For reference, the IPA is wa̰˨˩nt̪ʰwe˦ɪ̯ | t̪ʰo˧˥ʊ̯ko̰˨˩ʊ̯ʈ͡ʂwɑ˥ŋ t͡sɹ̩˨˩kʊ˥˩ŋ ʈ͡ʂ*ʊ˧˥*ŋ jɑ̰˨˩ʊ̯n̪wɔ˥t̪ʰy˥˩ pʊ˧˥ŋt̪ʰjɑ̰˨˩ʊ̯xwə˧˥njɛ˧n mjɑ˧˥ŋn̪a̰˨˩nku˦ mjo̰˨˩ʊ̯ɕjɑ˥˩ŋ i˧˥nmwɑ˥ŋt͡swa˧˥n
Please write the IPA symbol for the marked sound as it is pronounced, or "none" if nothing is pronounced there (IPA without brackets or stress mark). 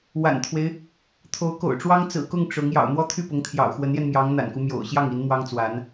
ʊ˧˥